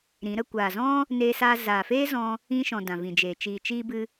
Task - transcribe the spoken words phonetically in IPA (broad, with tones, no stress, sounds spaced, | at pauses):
ɾ ĩ˨˦ ɾ ə˧ kʷ aː˨ z ɔ̃˦ | n eː˧ s aː˧ z aː˨ f eː˦ z ɔ̃˧ | ĩ˧ ʃ ɔ̃˨ d ã˨ v ĩ˨ d͡ʒ eː˨ t͡ʃ iː˨ t͡ʃ iː˧ b ɨ˧